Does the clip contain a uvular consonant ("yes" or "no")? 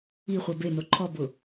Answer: yes